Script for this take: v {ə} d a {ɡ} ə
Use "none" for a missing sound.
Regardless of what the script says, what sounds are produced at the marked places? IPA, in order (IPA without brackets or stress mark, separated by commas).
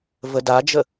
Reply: ə, d͡ʒ